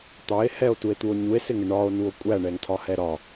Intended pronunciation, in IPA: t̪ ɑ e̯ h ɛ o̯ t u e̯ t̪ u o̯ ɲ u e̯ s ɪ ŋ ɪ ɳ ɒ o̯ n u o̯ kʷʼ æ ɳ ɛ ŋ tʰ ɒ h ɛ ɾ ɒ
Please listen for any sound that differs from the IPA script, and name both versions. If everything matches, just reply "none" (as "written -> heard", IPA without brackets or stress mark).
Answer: none